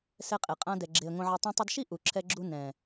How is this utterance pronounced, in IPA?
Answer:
sɛ˧qʼe˨qʼã˧ dɛ˧ɡ͡ǁe˧ə̯ŋõ˦ʕa˦ tˤũ˧tˤu˧dʃi˦ ʔu˨ ǁʰɛ˧ɡ͡ǁu˧ nɛ̃˨

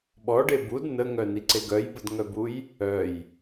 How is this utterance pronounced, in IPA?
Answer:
ɓɔɖe bud nəŋœniǀe ɡœjbədŋœbuj | œj

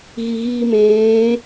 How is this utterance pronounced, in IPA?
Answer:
ɣiɣiːmẽː

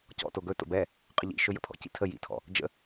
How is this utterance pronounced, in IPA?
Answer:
cɔ̰to ɡɵto̰ bɛ | qʼəʎḭʃɵ jə̰pʰɔ̰cḭ tʰə jḭtʰɔ̰ | d͡ʒə̰

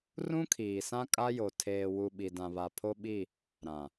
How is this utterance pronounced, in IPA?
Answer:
rũ˦kʰiː˨sã˦ kʼa˦jo˨ tʰeː˨ wu˨ ɓi˨dã˨βa˨ pʰo˦ ɓi˦˨ | ɾã˨

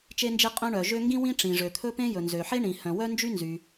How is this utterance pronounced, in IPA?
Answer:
t͡ʃe˥nd͡ʒe˥qʼœ̃˥ ɳœ˩ʒø˥ ŋɡĩ˥wĩ˥ ʈ͡ʂĩ˩ʐø˩t̪ʰɵ˥pẽ˥ jɵ˩nzø˩ħe˥ ɳĩ˩ hœ̃˩wœ˥nd͡ʒy˥nzy˩

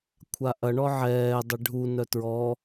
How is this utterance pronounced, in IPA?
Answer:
kʷʰaʔɐ ɳɔʕɛː dˤeɖʱu nœtɹɔ

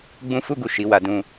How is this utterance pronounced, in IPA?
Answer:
ɡ͡bũ˦fu˦ɡu˦˨ ʃi˨˦wa˧dũ˧

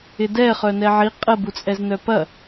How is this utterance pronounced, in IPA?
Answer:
ɪdɛ χœnɛʕi qʼə but͡sʼɛznœpɐ

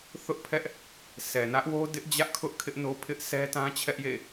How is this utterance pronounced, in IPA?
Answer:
θʊ˦ʔpʰɛ˦ʔ | sʰɛ˨nä˦ʔwo˦ dɪ˦ʔd͡ʑä˦ʔkʰʊ˦ʔ kʰɪ˦ʔno˦pʰɪ˦ʔ sɛ˦ tã˦t͡ɕʰɛ˦ʔjḛ˦˨

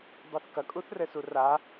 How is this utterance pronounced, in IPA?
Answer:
dˤɘθkɐ kʼuθrɘsura

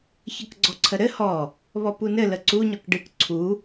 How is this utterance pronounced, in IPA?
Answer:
çʌkɡ͡ǀɔǀʰəɾɘ hɔ | βɔpunɘ ləǀu ɲɔkɖɨk ǀʰu

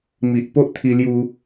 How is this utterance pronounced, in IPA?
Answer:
mi˨ʔ po˦ʔt̪ʰi˧lju˧

